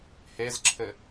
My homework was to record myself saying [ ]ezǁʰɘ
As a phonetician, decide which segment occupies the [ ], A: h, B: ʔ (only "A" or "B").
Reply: A